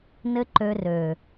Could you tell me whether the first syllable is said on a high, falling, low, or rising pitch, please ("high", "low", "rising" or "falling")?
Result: high